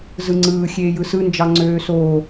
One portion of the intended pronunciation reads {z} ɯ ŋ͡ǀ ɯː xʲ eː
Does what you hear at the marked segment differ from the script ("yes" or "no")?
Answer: no